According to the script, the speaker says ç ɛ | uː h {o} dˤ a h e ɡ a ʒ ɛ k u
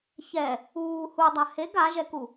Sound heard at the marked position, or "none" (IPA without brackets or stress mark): u